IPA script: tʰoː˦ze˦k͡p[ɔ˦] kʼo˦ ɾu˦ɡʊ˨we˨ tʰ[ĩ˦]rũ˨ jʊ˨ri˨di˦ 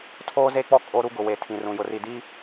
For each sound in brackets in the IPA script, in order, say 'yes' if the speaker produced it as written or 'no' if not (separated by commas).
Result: yes, no